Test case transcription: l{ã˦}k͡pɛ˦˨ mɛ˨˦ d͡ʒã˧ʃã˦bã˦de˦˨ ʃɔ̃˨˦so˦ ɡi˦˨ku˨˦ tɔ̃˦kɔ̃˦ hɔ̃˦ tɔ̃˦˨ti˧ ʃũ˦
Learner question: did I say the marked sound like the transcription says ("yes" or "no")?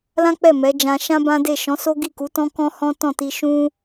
yes